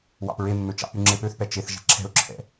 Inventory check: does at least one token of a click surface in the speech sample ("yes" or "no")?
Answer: yes